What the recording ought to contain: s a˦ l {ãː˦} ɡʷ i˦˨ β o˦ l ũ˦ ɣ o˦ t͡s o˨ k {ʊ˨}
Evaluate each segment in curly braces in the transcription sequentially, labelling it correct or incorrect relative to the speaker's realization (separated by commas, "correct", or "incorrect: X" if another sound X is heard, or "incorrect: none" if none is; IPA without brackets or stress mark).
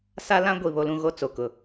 incorrect: ã˦, correct